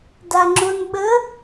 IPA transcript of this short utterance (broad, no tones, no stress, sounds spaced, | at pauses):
d a ŋ͡ǁ o n ɓ ə